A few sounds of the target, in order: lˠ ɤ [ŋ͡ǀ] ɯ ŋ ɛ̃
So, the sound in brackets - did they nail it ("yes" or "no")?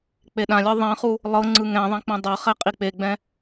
yes